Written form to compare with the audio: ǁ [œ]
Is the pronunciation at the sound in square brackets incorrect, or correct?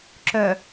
correct